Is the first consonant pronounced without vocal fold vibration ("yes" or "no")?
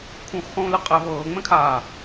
yes